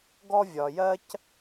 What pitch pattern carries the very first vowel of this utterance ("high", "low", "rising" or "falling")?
high